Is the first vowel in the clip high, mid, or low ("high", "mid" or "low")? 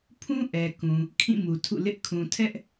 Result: high